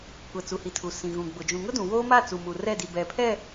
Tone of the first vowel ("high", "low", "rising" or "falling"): low